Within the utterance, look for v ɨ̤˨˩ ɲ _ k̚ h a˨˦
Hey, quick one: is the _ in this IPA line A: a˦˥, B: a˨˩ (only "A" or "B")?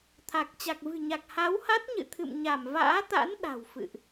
B